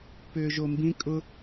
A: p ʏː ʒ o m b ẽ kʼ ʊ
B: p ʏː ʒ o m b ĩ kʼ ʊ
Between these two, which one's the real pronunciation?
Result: B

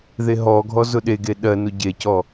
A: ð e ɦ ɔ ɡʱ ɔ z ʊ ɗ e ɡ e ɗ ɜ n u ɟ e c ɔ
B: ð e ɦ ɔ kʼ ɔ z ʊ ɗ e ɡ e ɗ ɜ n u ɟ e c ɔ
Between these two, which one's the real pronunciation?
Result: A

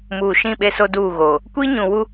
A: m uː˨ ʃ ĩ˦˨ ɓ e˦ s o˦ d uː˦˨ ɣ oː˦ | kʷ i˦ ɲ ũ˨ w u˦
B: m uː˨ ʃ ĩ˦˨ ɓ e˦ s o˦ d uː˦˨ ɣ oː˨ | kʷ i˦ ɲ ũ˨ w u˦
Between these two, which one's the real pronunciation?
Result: B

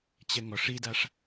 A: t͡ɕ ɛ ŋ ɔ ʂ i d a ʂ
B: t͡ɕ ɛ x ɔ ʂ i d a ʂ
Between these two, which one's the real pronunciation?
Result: A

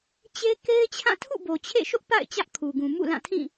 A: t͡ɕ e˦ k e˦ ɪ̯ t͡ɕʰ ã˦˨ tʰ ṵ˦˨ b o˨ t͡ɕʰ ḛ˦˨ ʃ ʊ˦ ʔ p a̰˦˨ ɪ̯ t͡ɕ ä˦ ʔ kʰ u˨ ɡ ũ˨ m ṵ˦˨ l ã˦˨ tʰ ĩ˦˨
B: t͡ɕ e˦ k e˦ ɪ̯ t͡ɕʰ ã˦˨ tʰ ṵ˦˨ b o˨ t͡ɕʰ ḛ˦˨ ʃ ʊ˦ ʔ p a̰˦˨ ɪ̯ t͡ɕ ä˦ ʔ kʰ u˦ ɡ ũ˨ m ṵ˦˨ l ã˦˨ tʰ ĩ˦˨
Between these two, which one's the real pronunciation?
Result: A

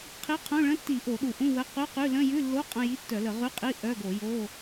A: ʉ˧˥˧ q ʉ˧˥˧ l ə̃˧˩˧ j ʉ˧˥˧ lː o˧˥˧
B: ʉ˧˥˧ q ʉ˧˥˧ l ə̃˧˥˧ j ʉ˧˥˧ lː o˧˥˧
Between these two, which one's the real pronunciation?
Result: B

